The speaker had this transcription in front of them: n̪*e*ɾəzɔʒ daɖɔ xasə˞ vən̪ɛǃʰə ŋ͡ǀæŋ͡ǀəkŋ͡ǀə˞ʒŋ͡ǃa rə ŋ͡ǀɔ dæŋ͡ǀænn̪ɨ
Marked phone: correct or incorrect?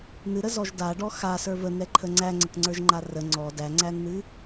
incorrect